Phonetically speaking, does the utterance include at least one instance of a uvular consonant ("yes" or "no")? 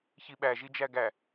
no